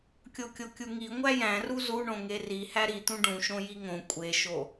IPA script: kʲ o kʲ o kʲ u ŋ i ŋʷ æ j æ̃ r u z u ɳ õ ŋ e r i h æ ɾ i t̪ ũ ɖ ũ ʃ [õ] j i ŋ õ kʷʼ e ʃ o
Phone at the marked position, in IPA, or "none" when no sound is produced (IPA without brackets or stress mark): õ